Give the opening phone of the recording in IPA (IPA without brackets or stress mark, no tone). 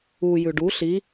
u